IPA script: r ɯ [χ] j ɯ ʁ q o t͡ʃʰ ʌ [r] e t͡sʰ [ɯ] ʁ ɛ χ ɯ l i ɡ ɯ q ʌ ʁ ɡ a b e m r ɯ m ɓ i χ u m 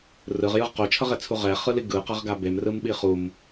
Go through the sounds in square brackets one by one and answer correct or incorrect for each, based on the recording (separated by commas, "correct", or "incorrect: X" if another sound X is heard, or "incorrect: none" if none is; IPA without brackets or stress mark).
incorrect: ʁ, incorrect: ʁ, incorrect: u